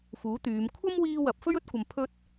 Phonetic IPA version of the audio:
f uː˨˥ t̪ yː˨˧ m kʷʰ ɐ˥ m w iː˧ w ɐ˨ p̚ f ɵ˥ ɥ ɵ˥ t̚ kʷ ɐ˨ m pʰ ɵ˧ t̚

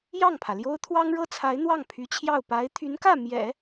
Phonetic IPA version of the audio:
j ɑ˥˩ ŋ pʰ ä˩ l j o˥ ʊ̯ t̪ʰ w ɑ˥ ŋ ɻ ɤ˥ t͡sʰ a˧˥ ɪ̯ n̪ w ɑ˥˩ ŋ pʰ y˧˥ t͡ɕʰ j ɑ˥˩ ʊ̯ p a˧˥ ɪ̯ t̪ʰ y˧˥ n k ä˥˩ m j ɛ̰˨˩˦

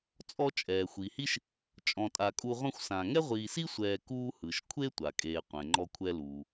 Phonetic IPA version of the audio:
t͡sʼ ɔ˦ t͡ʃʼ ɛː˩ xʷ i˩ h i˥ ʃ | t͡ʃʼ ɔ̃˨ tʼ a˨ kʼ u˦ ʁʷ ɛ̃˥ xʷ s ã˨ ŋ ɛ˥ ʁʷ iː˨ s i˥ sʷ ɛː˨ k uː˦ h ɯ˩ ʃ kʷʰ e˥ tʷ a˩ kʼ eː˨ qʷ ɛ̃˩ ŋ͡ǃ ɔ˦ kʷʰ ɛ˦ l uː˩

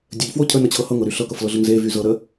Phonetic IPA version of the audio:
dʲ ə ʎ f w o cʰ ə n ə t͡ɕʰ ɤ h ɤ ŋ ɤ ɾ y ɬ ɤ k ɤ f l ɤ ɮ ə ŋ z e v y z ɤ ɾ ə

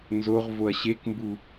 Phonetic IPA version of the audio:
n z o ʁ v o ɐ̯ ɕ e k m b u

